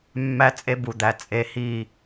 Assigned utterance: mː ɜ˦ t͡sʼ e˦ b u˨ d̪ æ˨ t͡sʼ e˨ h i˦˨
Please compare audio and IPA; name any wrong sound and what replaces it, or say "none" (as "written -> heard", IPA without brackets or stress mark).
ɜ˦ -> æ˦